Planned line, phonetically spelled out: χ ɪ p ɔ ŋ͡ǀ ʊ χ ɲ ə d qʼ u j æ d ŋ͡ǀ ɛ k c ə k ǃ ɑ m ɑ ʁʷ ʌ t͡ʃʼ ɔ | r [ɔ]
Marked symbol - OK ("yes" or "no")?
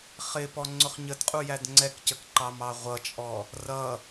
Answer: no